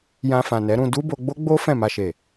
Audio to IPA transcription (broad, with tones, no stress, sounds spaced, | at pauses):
j ã˧ f ã˨ n ɛ˨˦ ɾ ũ˧ d u˦ b o˧ ɡ͡b o˦ ɡ͡b o˦ f ɛ̃˦˨ m a˧ ʃ e˨